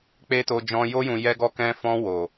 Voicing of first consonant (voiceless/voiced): voiceless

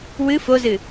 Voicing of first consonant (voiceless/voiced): voiced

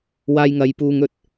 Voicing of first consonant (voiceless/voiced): voiced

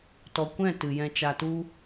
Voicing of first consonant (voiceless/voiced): voiceless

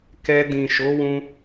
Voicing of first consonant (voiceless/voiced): voiceless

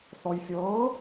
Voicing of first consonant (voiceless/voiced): voiceless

